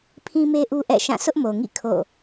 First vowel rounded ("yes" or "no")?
no